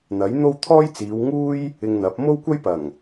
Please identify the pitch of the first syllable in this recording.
rising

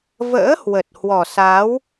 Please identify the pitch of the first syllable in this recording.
rising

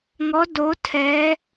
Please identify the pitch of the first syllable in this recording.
rising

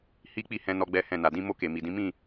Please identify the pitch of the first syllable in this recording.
high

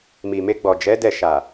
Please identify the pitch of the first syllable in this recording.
low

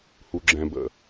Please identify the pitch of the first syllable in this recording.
low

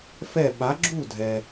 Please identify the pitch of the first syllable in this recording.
falling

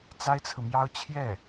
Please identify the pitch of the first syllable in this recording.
high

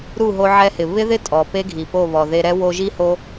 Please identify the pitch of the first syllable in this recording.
falling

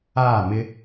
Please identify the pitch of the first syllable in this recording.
falling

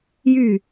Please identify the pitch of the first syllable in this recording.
falling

